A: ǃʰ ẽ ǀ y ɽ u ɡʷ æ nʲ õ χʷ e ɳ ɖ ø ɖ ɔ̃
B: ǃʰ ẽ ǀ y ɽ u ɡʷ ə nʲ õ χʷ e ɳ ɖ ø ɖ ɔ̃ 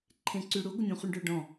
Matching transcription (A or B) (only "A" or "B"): B